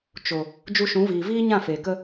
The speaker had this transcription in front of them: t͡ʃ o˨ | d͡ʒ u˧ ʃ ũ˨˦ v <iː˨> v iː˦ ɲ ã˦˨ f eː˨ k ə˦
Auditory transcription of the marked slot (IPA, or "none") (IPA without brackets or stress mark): iː˨